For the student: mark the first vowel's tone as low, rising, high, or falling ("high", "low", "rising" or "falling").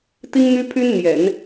high